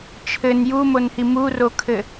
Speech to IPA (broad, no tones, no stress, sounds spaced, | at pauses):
t͡ʃʰ ɘ n j u m o n h i m u r o kʰ ɘ